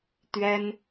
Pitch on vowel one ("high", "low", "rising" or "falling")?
high